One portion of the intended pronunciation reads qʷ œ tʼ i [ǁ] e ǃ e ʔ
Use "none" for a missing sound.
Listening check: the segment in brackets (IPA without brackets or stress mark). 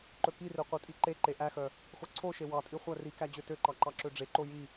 ǃ